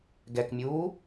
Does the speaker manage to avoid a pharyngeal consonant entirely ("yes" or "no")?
yes